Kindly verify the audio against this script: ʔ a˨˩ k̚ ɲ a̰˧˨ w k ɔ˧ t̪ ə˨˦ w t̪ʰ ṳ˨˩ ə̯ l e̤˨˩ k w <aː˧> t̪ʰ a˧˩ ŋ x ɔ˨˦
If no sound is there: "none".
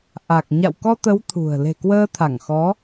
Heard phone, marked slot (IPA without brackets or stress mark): əː˧